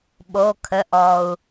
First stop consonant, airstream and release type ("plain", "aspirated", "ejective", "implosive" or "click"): implosive